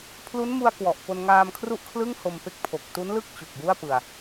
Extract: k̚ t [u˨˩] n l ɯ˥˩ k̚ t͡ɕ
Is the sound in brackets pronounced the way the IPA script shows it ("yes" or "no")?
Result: no